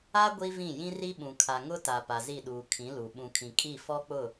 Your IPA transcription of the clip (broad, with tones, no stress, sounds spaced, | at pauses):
a˦ ɡʷ i˦ v ĩ˦˨ j ĩ˦ r i˦ ɓ ũ˨ kʰ a˨ ŋ ʊ˦ t a˨ p a˨ z i˦˨ ɗ uː˨ kʰ ĩ˨˦ l u˨ ɓ ũ˨ kʰ ĩ˨ kʼ i˦˨ f ɔ˦ k͡p ʊ˦˨